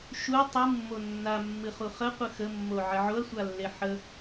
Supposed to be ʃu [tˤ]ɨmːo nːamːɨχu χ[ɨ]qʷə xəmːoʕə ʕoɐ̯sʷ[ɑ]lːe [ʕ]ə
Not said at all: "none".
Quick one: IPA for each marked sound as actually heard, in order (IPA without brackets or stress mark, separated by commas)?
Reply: tˤ, ə, a, ħ